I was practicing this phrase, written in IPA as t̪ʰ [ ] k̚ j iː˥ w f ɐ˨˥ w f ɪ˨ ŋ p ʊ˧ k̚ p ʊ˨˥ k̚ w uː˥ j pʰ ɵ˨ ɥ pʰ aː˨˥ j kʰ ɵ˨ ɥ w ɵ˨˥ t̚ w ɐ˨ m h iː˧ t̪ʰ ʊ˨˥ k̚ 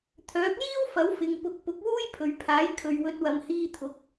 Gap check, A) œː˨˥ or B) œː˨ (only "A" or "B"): A